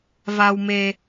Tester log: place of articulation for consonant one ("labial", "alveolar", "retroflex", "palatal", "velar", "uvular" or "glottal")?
labial